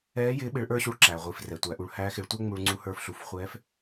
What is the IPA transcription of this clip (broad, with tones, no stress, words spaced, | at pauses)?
ɛː˧˥jɪː˧˥ ɓɪ˧˥ɭʔə˞˥ɕu˧ɭ ǁæ˩ʁʷi˩f rɛː˩tʷæ˩˧ ʔu˩˧ɭhæː˧˥ xɪ˩˧ɭtʷɛ˥ ŋ͡mu˧ɭŋ͡ǀu˧˥hə˞˧f ɬu˩˧fχʷɛː˧˥f